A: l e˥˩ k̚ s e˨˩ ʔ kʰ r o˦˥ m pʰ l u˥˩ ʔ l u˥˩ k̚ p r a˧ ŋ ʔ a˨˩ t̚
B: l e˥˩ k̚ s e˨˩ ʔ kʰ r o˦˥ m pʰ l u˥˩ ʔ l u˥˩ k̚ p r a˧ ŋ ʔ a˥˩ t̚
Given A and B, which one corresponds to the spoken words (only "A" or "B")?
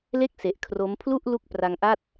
B